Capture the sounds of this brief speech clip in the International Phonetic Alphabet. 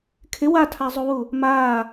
kʰɪ watʰazˤuwu | maː

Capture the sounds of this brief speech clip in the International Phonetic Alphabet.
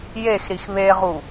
jexɾix βeʁu

